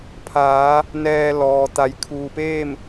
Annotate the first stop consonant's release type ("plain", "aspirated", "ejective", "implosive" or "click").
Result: aspirated